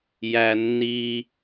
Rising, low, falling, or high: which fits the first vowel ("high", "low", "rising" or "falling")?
low